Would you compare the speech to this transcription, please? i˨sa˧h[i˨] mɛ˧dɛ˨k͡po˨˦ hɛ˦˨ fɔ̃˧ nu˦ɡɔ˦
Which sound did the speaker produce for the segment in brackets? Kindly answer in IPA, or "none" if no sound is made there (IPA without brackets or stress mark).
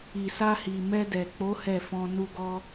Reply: i˨